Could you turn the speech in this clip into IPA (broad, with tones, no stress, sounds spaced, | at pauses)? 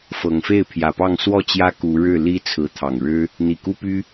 f ɤ˨˩ ŋ f e˥˨ ɪ̯ pʰ j ä˨˩ p ɑ˥˨ ŋ s w ɔ˥˨ t͡ɕ j ä˦ k u˨˦ ɻ ɻ̩˥˨ l i˦ t͡sʰ ɹ̩˨˦ t̪ʰ ɑ˨˩ ŋ ɻ ɻ̩˦ | n̪ i˨˩ k u˦ p y˦